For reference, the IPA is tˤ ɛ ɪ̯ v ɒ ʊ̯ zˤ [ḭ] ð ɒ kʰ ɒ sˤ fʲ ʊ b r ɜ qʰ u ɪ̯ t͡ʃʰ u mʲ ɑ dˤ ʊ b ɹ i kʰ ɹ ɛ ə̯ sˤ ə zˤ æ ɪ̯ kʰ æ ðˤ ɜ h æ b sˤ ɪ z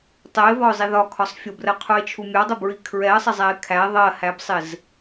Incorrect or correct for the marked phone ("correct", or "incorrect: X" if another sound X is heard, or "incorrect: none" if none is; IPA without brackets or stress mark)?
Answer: incorrect: i